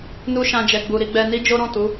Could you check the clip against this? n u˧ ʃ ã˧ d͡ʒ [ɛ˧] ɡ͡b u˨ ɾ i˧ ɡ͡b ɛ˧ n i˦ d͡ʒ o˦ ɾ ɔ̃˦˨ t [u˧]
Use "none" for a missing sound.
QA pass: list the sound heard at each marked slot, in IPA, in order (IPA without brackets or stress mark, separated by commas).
ɛ˨, u˨˦